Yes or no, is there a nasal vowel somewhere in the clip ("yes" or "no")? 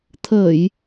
no